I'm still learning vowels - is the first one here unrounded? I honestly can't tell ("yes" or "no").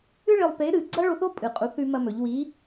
yes